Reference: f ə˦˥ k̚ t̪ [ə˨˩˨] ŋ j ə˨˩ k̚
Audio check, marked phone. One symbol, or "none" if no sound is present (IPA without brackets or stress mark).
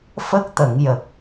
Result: ə˨˩˨